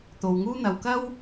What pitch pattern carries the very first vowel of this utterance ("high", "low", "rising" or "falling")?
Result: low